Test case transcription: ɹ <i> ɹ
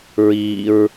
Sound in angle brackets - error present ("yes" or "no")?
no